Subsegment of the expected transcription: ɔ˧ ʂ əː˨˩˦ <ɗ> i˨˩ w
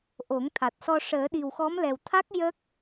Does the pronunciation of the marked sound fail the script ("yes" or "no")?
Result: no